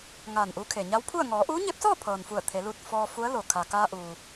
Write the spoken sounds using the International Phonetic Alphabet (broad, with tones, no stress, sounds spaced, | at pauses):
ŋ aː˧˩ n ʔ u˧˥ kʰ e˩ ɲ a˧˥ w pʰ u˥˨ ə̯ ŋ ɔː˩˧ ʔ uː˧˥ ɲ e˧˥ p̚ s ɔː˥˨ pʰ ɤː˩ n f u˧˩ ə̯ t̪ʰ e˩˧ l uː˧˩ t̚ f ɔː˧ f u˧˥ ə̯ l o˩ kʰ a˩ k aː˧ ʔ uː˩